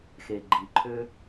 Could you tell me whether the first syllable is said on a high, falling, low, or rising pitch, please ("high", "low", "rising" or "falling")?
low